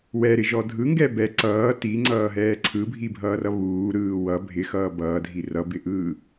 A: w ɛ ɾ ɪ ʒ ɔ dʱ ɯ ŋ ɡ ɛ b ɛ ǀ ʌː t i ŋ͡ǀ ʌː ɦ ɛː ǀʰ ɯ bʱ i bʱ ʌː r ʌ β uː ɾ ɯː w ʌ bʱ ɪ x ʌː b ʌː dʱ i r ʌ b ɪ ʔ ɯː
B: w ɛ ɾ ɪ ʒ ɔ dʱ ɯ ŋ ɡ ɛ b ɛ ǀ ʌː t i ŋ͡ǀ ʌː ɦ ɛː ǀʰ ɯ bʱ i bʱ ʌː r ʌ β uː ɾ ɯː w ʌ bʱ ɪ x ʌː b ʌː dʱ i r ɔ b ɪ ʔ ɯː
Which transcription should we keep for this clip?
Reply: A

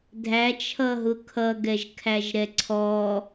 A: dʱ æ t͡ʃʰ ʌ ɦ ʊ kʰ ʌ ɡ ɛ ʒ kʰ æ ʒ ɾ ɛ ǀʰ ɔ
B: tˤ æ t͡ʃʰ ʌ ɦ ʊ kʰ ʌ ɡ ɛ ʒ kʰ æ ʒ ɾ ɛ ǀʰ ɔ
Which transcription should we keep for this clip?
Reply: A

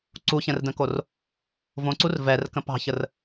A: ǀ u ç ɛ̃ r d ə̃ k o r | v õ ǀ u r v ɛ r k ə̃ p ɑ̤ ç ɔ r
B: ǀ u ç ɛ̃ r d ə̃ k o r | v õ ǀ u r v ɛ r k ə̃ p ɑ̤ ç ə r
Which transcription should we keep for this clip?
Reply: B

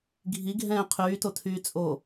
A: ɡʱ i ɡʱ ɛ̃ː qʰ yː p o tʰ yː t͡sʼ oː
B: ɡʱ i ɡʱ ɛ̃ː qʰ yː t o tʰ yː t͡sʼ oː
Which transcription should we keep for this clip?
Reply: B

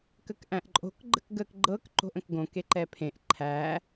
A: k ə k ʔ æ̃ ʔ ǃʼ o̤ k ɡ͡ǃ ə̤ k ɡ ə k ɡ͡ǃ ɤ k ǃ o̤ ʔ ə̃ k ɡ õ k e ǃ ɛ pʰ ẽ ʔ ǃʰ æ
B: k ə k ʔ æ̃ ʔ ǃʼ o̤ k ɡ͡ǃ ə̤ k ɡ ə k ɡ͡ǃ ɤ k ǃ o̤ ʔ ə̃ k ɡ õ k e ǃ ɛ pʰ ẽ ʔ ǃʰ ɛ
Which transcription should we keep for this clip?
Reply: A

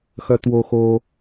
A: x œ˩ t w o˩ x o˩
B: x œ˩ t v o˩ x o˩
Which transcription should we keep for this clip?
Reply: A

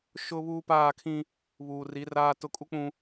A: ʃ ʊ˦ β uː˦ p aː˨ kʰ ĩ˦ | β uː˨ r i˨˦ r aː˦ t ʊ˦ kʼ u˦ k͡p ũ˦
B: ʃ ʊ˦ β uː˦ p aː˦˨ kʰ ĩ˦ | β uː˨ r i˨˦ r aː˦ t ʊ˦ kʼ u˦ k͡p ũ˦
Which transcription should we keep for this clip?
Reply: B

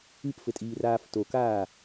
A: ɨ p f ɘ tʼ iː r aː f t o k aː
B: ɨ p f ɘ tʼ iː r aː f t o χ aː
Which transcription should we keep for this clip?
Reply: A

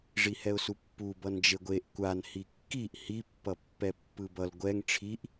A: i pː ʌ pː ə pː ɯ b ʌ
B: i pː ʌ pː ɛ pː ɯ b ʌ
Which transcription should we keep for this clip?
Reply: B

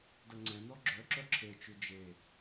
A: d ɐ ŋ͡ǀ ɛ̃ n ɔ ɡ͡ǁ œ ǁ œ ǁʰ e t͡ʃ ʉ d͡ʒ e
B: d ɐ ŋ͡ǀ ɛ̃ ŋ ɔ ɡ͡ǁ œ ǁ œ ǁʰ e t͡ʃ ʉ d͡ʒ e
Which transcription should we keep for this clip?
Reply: A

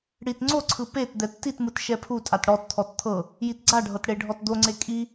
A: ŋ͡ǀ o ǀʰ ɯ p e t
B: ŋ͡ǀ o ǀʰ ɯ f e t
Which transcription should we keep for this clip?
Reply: A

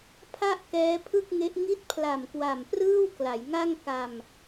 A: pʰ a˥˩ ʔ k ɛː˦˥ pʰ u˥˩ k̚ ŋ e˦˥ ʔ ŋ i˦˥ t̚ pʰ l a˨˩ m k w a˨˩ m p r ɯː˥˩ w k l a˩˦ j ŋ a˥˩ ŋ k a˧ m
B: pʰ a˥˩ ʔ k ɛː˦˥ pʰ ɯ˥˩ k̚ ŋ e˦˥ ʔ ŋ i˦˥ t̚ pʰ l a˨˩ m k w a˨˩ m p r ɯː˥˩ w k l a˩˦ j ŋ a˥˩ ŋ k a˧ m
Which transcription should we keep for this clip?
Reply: B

